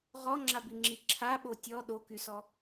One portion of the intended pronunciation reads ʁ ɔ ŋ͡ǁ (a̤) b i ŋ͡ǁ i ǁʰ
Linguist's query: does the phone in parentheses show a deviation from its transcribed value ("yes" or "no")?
yes